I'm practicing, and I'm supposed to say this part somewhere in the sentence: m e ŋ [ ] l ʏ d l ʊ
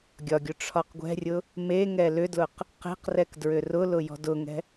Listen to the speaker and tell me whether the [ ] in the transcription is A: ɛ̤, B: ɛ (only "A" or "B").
B